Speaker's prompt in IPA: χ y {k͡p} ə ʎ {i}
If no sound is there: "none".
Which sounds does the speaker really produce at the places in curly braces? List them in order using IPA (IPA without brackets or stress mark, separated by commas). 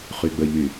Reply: ɡ͡b, y